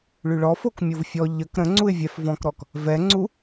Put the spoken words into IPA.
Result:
ɭ y ɭ ɔ f o k mʲ o v fʲ ɔ ʎ ə k ɾ ə̃ ŋ͡ǀ u ɪ̯ vʲ ɛ f v ɔ̃ k ɾ ɔ k | v ɛ ŋ͡ǀ u

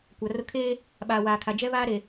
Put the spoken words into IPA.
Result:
kʷ a˨ r ʊ˦ kʰ eː˦ | ɓ aː˨ w aː˨ kʰ a˨ d͡ʒ ɛ˦ β aː˦ ɾ e˨

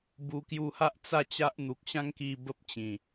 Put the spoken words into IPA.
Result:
b u˧ k j u˧ h a˦ ʔ t͡s a˥˧ t͡ɕ a˦ ʔ n̪ u˨ k̚ ɕ ã˦ ŋ k i˧ b ə˦ p̚ t͡ɕ ĩ˨˩

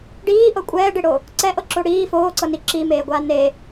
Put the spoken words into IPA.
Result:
ɖ iː ʔ ɤ kʷʼ ɛː ɖ e ɽ o | ǀ ɛ ʔ ɤ ǁ o ɽ iː f oː ǀ ɤ n i ǁ i m eː ɡʷ aː n e

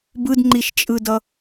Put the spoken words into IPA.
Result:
b ɯ d ŋ͡ǃ i ʃ t͡ʃʼ ɯ d ʌ

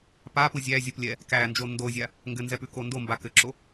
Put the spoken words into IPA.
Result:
p a p u zʲ æ zʲ o p lʲ ɛ | k æ n d͡ʒ o n d o zʲ a | ŋ ɡ ɘ n z ɛ p ʉ k o n d o m b a k ɘ ǁ o

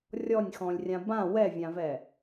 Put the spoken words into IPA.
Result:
rʲ ɔ nʲ x ɔ̃ lʲ rʲ ã b ã w ɛ vʲ ã v ɛ

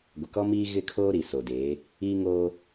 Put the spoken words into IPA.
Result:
ɡʷ ɪ˨ k ɔ˦ m iː˦ ɣ ɪ˦˨ kʰ oː˦ ɾ i˨ s o˨ d eː˨˦ | iː˦ ŋ oː˦

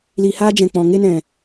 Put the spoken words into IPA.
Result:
l iː˧ h aː˦ d͡ʒ ɛ̃˨ k͡p ɔ̃˨ ŋ e˧ n ɛ̃˨

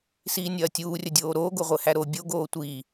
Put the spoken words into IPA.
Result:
s iː nʲ ɐː tʲ uː rʲ ɐ dʲ oː ɾ oː ɡ o ʁʷ ɘ h æ ɾ o bʲ o ɡ oː tʷ i

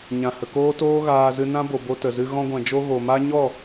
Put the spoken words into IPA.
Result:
ɲ ã˨ h ə˨ k oː˦ t oː˦ ɣ aː˧ z ɨ˧ n ã˦ b o˨ b o˧ t ə˨ z ɨ˧ ɣ ɔ̃˧ ɡʷ ɛ̃˨ d͡ʒ o˧ ɣ o˨ m a˦ ɲ ɔ˦˨

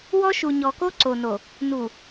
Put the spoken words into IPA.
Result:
w ɔ˦ ʃ u˨ ɲ ɔ˨ k o˦ ǀ o˨ n o˨ | n u˨

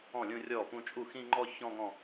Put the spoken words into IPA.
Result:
ɔ̃˥˩ lʲ ũ˥˧ rʲ ɔ˥˩ p ũ˥˧ t͡ʃʼ u˥˩ x ĩ˥˧ ŋ͡ǃ ɔ˥˧ ç ɔ̃˥˧ ŋ ɔ̃˥˧

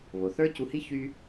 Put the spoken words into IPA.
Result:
β o˩ θ ə˞˥ c u˧ h i˥ ç y˥

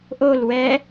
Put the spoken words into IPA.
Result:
ʔ o l w ɛ

